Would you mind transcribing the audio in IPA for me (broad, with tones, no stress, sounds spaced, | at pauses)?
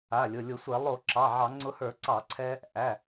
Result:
a˩˧˩ lʲ ʊ˩˧˩ lʲ ʊ˧˩˧ sʷ ɛ˧˩˧ lˠ o˧˩˧ ǁ ɑ˩˧˩ ʕ ɑ˧˩˧ ŋ͡ǀ ʊ˧ h ə˞˧˩˧ ǀ ɑ˧˩˧ ǀʰ ɛ˧ | ʔ æ˩˧˩